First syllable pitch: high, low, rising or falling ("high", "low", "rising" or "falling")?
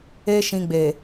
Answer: high